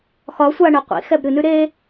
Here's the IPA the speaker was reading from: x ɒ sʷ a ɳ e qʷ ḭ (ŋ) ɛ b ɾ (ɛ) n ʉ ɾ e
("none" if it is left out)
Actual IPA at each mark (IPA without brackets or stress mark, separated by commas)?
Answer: x, ɨ